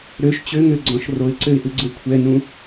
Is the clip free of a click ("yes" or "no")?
no